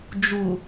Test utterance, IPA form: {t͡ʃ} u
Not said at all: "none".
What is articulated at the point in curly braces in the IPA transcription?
d͡ʒ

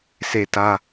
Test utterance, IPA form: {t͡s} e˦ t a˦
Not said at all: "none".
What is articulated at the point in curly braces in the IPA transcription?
s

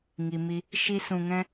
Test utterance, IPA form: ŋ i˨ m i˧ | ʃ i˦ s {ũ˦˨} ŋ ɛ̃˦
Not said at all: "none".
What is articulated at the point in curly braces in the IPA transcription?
ũ˧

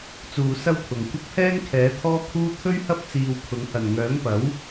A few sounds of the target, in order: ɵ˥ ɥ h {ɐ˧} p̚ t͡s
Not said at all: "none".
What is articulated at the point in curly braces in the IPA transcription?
ɐ˥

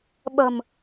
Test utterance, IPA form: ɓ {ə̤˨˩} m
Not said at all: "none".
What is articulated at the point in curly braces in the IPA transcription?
ə̤˨˩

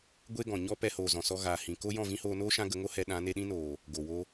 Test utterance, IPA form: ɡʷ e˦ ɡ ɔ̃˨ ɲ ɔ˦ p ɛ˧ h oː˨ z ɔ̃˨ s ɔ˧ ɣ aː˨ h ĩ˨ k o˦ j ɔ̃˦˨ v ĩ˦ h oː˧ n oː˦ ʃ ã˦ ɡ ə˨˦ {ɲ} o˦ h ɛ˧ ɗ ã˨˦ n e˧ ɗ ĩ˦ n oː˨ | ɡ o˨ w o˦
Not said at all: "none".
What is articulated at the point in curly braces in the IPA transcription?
ŋ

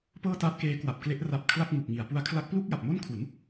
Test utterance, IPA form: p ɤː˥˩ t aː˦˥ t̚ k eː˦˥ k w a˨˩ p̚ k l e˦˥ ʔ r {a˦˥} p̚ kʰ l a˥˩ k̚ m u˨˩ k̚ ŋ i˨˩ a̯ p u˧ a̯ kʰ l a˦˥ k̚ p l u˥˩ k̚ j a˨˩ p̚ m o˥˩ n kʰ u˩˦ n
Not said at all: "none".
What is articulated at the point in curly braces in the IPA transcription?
a˦˥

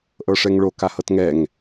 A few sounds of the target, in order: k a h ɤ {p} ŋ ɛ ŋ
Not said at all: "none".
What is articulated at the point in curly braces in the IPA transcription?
t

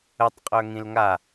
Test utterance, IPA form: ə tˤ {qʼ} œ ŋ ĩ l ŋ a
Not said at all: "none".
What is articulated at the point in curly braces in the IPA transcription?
qʼ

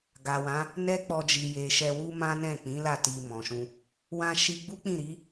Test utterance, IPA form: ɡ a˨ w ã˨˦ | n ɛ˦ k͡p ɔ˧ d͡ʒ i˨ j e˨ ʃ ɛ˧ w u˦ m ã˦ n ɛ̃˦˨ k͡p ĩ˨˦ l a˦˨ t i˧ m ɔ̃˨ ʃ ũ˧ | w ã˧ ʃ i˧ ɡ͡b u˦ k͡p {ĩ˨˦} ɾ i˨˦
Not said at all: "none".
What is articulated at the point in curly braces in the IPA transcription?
ĩ˦˨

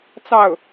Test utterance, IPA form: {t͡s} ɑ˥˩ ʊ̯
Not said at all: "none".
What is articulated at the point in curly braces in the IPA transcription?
t͡s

